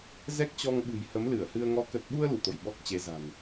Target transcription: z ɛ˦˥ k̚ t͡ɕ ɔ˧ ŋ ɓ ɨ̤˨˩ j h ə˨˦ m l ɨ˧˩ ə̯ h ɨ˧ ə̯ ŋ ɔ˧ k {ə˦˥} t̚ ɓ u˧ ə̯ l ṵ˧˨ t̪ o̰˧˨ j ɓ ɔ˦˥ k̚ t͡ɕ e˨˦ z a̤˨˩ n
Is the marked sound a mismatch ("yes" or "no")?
yes